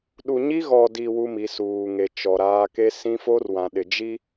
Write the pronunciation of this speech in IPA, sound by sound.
ɗu˨ɲi˦ɣɔ˨di˨ wu˦mi˨˦suː˨ ŋe˨t͡ʃɔ˨ɾaː˦ ke˦sĩ˦ fo˦rwã˨ ɗɪ˨d͡ʒi˦

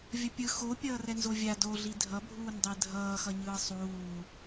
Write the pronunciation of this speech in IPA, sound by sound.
vʲʌpʲɯ xo pʲʌːrɛnzovʲa doɮi dʱʌbʱuːndˤe dʱʌːxʌɲɯː sˤuː

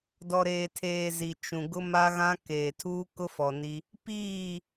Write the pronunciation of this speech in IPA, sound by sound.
dɔ˨ɾeː˨tʰeː˨ zi˨t͡ʃũ˨ɡʊ˦ ma˦ɣã˦ keː˨tʰuː˦kʊ˦fɔ˨ ni˦ | piː˦˨

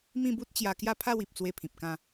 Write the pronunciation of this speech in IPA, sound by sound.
mĩ˥˧bu˦t̚t͡ɕja˧ kja˦pʰa˥˧wi˨p̚ t͡swe˥˧pʰĩ˨p̚kã˥˧

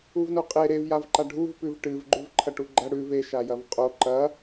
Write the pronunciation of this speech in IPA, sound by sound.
uvnoqʼe ɾev javǃaɖʱuv pʉvʈɨv ɡ͡ǃʉvǃʰɐʈuɡ͡ǃɐ ɽʉv e ʃajɐvqʼo ǃɐ

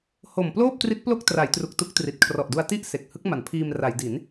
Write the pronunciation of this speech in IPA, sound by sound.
ho˨˩mploː˥˩p̚tri˦˥t̚ plo˥˩k̚tra˩˦jtru˨˩k̚ tu˦˥k̚tri˨˩t̚ kʰrɔ˨˩ʔdu˧a̯ ti˥˩ʔ se˨˩k̚hɯ˦˥k̚ma˩˦npʰiː˧m ra˩˦jdi˩˦n

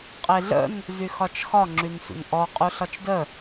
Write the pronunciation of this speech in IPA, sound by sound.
qʼeɮə̰n | zyxɒt͡ʃxɒ ŋ͡ǁynsʷə̰nʔɔ qʼuɬɒt͡ʃdə

